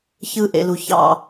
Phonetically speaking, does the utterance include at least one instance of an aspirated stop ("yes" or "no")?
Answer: no